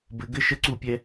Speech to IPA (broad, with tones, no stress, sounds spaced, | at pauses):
b ɘ˦ ɡ ɘ˦ ʃ ə˦ ǀ u˦˨ pʲ ɛ˦